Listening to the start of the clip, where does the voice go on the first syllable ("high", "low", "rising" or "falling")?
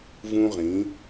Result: high